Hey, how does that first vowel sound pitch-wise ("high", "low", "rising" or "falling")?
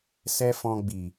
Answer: high